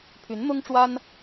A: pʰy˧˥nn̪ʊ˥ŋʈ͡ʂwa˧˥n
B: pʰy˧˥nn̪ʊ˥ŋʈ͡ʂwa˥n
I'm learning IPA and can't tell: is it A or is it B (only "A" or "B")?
B